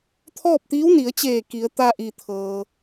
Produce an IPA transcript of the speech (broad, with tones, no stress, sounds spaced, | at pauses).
t̪ʰ ɔː˥˨ p̚ t̪ iː˧˥ w n i˩˧ ə̯ t͡ɕ eː˧˩ k i˩˧ ə̯ t̪ a˧ ʔ i˩ t̪ʰ ɤː˩